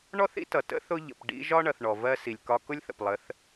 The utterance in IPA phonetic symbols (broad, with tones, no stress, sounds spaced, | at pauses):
ɳ ɔ˦ θ ḭ˦ t ʌ˨ t ə̰˦ θ ʊ˦ ʎ ə̰˨ p ɖ ḭ˦ ʒ ɒ˦ ɳ ʌ˨ θ ɳ ɔ˨ v ɜ˦ s i˨ lʲ k ɒ˦ k ʊ˦ lʲ θ ə̰˨ p lˠ ə˨˦ θ